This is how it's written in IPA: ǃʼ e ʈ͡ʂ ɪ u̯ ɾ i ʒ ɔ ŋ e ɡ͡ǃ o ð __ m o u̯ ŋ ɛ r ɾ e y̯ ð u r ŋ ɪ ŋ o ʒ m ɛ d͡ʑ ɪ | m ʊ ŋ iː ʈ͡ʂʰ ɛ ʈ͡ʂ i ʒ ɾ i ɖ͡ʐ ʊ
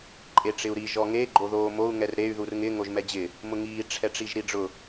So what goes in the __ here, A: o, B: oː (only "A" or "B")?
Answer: B